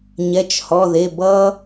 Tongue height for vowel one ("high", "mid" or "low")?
mid